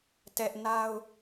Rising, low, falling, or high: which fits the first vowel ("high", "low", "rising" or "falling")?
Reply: high